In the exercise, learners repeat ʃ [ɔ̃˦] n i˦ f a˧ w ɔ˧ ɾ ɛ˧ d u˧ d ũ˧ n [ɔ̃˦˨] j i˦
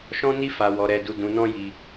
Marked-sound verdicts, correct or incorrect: correct, incorrect: ɔ̃˦

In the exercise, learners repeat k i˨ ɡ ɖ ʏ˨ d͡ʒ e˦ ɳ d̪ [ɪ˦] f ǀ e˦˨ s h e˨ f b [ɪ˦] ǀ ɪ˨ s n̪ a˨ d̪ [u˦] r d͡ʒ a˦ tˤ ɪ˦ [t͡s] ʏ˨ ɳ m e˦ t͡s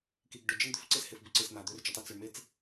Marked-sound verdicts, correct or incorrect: incorrect: ʏ˦, incorrect: ɪ˨, incorrect: ø˦, correct

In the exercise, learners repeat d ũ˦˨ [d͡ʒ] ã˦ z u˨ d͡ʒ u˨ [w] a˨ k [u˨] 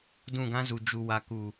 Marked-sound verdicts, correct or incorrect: incorrect: ɡ, correct, correct

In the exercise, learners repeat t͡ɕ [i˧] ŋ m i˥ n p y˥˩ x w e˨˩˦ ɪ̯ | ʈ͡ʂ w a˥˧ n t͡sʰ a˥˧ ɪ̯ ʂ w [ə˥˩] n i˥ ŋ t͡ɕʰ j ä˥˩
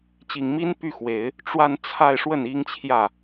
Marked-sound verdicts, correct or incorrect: incorrect: i˨˩, correct

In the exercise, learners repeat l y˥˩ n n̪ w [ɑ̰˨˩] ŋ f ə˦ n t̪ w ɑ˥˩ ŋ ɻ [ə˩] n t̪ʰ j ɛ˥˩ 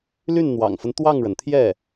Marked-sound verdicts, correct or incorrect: correct, correct

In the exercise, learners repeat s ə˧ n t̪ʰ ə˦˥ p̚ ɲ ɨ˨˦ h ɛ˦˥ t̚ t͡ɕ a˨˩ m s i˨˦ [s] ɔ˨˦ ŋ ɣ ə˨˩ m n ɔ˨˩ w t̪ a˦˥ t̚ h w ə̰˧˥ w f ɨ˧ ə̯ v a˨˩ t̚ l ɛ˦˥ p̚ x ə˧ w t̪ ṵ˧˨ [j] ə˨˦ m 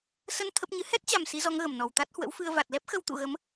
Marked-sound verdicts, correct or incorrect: incorrect: z, incorrect: ɣ

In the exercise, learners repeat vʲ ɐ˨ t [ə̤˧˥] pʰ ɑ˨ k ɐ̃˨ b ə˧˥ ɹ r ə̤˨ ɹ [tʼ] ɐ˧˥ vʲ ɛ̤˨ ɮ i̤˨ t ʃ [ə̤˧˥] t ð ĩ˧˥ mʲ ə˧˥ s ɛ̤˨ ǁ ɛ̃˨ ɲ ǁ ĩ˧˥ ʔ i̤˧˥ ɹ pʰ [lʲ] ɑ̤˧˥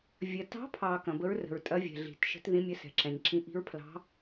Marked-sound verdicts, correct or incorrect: incorrect: ɑ̤˧˥, correct, correct, incorrect: l

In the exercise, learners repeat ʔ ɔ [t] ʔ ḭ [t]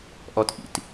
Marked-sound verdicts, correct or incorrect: correct, correct

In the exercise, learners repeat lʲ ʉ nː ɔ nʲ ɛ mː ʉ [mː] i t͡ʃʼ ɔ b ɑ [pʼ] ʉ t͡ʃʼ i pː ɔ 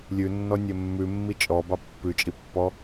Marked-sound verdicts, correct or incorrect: correct, incorrect: pː

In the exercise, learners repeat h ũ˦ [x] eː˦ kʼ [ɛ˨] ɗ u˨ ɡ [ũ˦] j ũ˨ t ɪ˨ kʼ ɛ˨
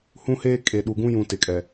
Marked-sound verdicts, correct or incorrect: incorrect: h, incorrect: e˨, correct

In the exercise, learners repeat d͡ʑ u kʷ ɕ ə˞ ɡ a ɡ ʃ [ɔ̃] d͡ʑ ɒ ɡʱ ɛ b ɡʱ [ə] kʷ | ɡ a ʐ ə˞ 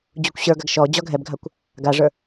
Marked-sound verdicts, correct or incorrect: incorrect: ɔ, incorrect: a

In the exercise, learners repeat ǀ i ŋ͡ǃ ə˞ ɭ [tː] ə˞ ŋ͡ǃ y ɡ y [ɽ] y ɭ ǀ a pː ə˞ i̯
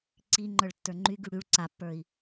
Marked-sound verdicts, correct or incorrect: correct, correct

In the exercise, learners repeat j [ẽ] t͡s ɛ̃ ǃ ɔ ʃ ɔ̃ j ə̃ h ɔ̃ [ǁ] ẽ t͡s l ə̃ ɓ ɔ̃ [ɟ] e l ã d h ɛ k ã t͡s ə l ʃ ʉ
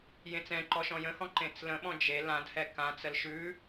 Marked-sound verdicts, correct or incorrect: correct, incorrect: ǃ, incorrect: d͡ʒ

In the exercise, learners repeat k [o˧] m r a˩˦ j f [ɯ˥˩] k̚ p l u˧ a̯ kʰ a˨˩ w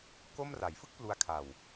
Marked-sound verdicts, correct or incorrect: incorrect: o˥˩, correct

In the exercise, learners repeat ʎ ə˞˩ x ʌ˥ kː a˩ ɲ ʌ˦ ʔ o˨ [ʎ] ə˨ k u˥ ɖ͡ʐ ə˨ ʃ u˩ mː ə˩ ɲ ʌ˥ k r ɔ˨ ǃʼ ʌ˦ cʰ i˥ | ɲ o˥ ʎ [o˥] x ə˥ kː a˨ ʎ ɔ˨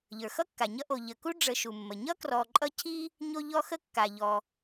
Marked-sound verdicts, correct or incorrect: correct, incorrect: ɔ˥

